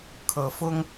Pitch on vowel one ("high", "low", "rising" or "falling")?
low